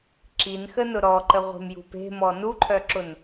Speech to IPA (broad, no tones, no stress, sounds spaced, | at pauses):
ǁ i n x ə n ʊ ɾ ɔ ǃ ə ʁʷ e̤ m j ṳ p e̤ m ɔ n u ǃʰ œ ǁ ʊ n